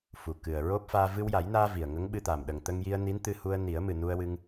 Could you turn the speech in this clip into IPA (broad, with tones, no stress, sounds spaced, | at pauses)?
f u˨˩ k ɨ˨˩ ə̯ ɹ o˦˥ p̚ f aː˧ v ɨ˧ w j a˨˩˦ j n aː˧ v i˨˩ ə̯ ŋ ə˧˥ ŋ ɓ ɨ˧ t̪ a˨˩ m ɗ ə˨˩ ŋ t̪ ə˧ ŋ j i˧ ə̯ n i˧˥ n t̪ ɨ˧ h u˧ ə̯ n i˨˩˦ ə̯ m ɨ˨˩ n u˧ ə̯ w ɨ˧ ŋ